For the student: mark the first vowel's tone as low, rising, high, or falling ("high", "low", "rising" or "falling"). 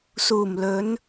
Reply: low